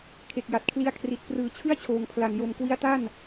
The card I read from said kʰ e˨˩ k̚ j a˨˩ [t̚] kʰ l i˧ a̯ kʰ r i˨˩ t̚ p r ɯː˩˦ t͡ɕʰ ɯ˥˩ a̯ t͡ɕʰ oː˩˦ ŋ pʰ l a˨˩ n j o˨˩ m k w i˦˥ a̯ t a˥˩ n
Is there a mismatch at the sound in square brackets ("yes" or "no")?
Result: no